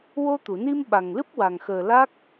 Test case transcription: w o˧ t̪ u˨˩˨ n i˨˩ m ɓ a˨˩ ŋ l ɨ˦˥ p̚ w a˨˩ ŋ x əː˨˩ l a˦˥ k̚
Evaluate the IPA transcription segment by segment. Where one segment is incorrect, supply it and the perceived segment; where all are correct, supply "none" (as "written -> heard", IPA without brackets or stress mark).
i˨˩ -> i˧